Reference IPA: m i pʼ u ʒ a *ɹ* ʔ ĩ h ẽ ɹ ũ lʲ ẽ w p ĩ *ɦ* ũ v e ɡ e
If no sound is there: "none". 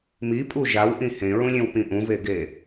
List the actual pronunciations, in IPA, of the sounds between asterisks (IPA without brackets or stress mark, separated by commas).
w, ʔ